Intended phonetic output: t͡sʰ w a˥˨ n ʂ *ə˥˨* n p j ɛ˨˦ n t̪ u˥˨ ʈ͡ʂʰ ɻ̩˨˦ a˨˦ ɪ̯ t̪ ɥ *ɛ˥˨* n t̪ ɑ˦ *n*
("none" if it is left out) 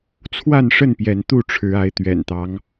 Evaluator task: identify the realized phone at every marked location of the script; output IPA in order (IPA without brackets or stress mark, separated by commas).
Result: ə˥˨, ɛ̰˨˩, ŋ